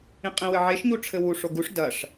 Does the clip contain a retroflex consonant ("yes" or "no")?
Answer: yes